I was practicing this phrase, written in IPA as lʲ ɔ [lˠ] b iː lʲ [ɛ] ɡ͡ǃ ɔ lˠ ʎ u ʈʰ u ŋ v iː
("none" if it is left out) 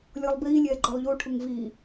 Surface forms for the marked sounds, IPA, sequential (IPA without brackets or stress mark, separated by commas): lˠ, ɛː